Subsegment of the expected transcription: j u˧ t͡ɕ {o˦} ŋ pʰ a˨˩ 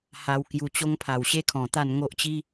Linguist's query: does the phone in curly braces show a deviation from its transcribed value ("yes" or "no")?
no